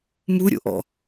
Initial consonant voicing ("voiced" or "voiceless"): voiced